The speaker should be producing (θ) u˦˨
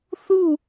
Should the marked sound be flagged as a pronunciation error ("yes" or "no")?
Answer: no